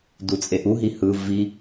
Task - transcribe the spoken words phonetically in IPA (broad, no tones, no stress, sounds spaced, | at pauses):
d u t͡sʼ e ʔ u ɦ i h ɯ v i